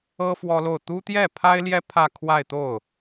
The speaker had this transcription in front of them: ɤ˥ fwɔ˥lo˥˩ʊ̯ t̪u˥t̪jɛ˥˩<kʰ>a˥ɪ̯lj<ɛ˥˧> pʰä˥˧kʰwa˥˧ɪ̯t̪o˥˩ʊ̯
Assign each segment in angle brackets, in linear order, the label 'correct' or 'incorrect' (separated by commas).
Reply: incorrect, incorrect